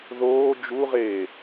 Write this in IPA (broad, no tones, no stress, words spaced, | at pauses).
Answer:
ðoː d͡ʒuʁeː